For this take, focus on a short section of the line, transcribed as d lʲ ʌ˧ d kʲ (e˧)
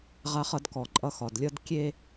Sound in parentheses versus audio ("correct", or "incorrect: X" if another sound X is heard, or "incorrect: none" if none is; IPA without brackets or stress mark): correct